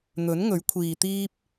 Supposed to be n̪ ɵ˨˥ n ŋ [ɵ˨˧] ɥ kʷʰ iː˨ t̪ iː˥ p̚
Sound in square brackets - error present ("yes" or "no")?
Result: yes